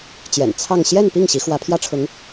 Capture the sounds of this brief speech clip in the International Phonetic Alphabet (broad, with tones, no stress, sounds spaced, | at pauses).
t͡ɕ j ɛ̰˨˩ n t͡sʰ ɑ˥˧ ŋ ɕ j ɛ˥˧ n p i˥˩ ŋ ɕ i˧˥ x w ä˧˥ pʰ j ä˥ ʈ͡ʂʰ ʊ˧˥ ŋ